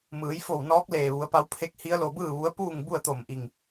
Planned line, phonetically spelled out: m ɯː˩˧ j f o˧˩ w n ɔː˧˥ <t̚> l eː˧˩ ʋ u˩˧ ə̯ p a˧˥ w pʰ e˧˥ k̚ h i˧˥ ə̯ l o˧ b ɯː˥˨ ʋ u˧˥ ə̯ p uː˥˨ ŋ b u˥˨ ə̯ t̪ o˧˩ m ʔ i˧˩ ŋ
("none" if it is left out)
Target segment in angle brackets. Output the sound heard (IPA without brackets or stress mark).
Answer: k̚